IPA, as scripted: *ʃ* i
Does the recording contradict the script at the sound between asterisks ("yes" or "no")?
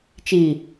yes